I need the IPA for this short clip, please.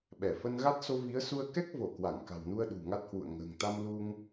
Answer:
ɓɛ˧˩fə˧nɣa˦˥t̚ so˧vi˨˦ə̯su˧ə̯ kɛ˦˥k̚vo˧˩ kwa˧˩ŋka̤˨˩wnu˧ə̯ ɗṳ˨˩ŋa˦˥t̚hwṵ˧˨ə̯ ŋə̤ː˨˩ŋt̪a˧mlu˧ŋ

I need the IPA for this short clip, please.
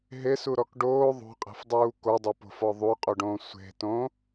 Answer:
ɦesuɾɔk ɖoː ðˤo̤qʼe̤fdˤuː kodˤopo̤fɔ ðˤuqʼuɖõː sʷe̤tõ

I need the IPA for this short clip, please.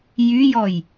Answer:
jyjɔj

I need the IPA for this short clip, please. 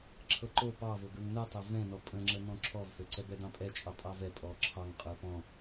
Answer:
ǁʰɤǃo pɑvoɡə˞ŋ nɤtˤø vɛ̃nɔ pʼə̃ŋ͡ǁə n̪ɔ̃ǁʰɔvhøǀɛ bɛd̪ɑ̃pʼɛt͡ʃʼɑ pʼɑvɛpʼɔ ǁʰɑŋ qʼə˞pɔ̃

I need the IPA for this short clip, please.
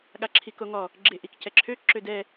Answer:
ɠaǁʰikoŋɔ | ɡ͡ǁeʔikcɛǁʰø ǁødɛ

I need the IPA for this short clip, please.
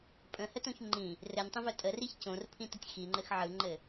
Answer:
pʼə̃hətõç ŋ͡ǃĩ | rɘnʲtˤə̃vœ tʼəriç cõrpʰĩtətʲ xiŋ͡ǃɘx ʕɯŋ͡ǃɘ

